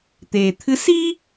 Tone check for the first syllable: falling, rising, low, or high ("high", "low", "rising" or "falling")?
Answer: low